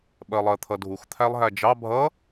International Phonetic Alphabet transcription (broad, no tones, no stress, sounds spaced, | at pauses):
ɓ ɜ lˠ ɜ t̪ʰ ʌ dʱ u x t̪ʰ æ lˠ ɦ æ d͡ʒ ɑ bʱ ʌ